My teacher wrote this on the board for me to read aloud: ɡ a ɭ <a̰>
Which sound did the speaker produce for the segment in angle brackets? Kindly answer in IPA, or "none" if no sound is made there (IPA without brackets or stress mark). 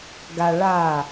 a